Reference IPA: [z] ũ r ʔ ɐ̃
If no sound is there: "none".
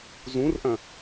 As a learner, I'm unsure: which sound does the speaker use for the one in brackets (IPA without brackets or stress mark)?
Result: z